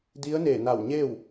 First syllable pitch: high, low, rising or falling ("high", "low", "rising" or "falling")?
rising